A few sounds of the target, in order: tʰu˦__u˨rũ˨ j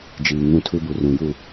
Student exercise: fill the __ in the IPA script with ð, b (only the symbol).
b